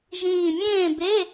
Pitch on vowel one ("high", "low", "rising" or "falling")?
low